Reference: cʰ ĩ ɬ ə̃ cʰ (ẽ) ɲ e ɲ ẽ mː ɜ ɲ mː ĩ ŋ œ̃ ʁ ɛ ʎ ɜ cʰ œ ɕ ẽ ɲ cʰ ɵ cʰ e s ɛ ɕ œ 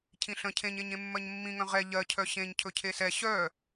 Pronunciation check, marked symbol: correct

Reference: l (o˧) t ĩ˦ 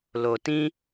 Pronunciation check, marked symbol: correct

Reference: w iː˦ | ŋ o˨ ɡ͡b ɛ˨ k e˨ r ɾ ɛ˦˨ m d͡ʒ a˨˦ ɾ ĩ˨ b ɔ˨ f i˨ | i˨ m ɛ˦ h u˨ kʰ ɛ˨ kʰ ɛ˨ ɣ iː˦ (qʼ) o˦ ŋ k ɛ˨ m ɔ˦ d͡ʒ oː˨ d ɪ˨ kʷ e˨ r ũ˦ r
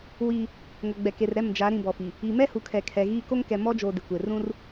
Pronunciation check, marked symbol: incorrect: k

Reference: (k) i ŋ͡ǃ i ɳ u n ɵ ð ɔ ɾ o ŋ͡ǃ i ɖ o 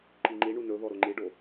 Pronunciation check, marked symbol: incorrect: ǃ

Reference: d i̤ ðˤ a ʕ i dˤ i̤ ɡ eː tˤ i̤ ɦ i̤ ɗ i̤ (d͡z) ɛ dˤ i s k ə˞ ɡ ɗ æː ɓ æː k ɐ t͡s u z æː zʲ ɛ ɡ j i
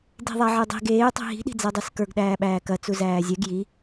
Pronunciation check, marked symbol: correct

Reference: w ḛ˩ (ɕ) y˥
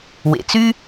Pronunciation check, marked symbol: incorrect: t͡s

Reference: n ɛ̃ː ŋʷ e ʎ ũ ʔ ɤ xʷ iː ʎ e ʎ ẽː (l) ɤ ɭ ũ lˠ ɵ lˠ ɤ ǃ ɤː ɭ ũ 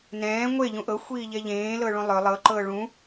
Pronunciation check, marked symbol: correct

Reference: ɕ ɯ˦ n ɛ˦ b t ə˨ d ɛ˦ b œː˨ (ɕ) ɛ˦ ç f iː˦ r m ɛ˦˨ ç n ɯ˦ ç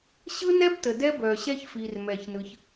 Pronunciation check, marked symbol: correct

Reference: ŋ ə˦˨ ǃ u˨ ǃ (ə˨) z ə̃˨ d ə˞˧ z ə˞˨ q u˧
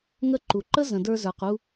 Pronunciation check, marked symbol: incorrect: ə˦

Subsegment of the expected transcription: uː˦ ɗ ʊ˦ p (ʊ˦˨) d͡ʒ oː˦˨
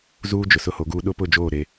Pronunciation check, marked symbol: correct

